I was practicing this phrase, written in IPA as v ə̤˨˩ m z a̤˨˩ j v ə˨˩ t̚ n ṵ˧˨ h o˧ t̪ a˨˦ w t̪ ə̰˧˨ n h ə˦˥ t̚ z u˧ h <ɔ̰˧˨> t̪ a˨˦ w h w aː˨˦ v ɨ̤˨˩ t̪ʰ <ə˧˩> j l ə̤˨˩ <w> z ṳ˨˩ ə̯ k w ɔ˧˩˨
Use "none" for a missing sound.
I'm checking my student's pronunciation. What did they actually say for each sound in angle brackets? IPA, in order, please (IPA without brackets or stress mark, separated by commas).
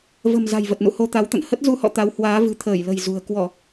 ɔ̰˧˨, əː˧˩, j